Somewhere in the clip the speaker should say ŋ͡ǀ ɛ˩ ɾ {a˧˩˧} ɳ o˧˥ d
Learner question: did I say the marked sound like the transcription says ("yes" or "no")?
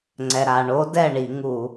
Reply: no